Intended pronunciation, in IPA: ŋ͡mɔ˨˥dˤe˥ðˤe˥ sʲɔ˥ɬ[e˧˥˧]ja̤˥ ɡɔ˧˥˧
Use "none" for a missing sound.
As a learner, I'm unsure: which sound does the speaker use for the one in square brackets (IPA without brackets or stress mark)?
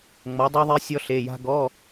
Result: e˧˥˧